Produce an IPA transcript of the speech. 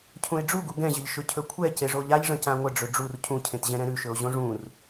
cʰũe̯ɖ͡ʐuɡu ɡɛ̃ʑəʎ ʃɵcʰɵkʷʰɛce ʐoʎaʎʐə̃ cãŋʷəɖ͡ʐɵ ɖ͡ʐur cʰũcʰẽtʑɛ̃ɾɛ̃ ɾʉʃɵo̯ ʑõʐũr

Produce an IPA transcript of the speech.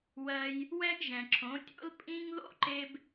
wɜ˧j | wɛ˦ɡʒɛ̃˨ǁʰõ˨˦tʲo̰˦l pʼĩ˦ŋ ðo̰˦ǃe˧b

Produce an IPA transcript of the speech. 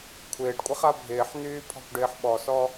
kʷʰɪːɖkʷʼɐχa bʱɪːħnyːpʰɔ̤kʷɖɪːħ ɓɔsɔ

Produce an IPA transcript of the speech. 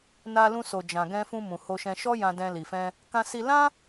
na˧lũ˧so˨d͡ʒã˨ ɡɛ̃˧fũ˧ mũ˨ho˧ʃɛ̃˧ ʃɔ˦ jã˧dɛ̃˧li˨fɛ̃˧ | kã˧si˧lã˦

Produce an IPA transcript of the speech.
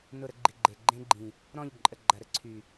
nʊ˦˨ɾə˦ɡ͡ǃi˨ɡ͡ǃe˨ ɡ͡ǃẽ˦ ɡ͡ǃĩ˨ | ɾɔ̃˦˨ʎǃʼə˨ɡ͡ǃɐ˨ ɾə˦ ǀʰy˨

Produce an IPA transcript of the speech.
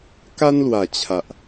ka˦nlwa˨˩t͡ɕʰa˨ʔ

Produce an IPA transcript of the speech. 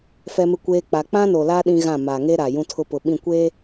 fɛ˦mɪ˦kʷeː˦ k͡pa˦ k͡pã˦no˨la˦ ɗĩ˦ɣã˦˨ ma˨ŋe˦ɾa˨ jũ˦tʰʊ˦ pʊ˨ɓĩ˦˨ kʷeː˦

